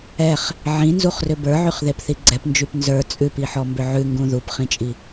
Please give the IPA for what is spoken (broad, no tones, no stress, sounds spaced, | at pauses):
ɛ χ | ʕ ĩ n z u χ r ʏ b ə˞ ʕ y χ ð e p θ i ɡ͡ǀ ɛ p n d͡ʒ y p n z ə˞ t͡sʼ ʉ p i ħ ɔ m b ʏ ʕ ʉ ŋ ɡ ũ ð u p χ ĩ t͡ʃʼ i